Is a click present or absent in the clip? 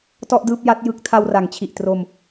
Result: absent